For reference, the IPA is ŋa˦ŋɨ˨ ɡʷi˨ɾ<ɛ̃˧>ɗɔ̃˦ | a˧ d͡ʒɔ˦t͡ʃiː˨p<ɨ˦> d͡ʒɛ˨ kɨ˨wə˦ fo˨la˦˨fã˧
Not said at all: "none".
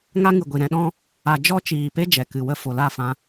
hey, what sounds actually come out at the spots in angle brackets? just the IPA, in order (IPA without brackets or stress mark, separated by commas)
ɛ̃˧, e˦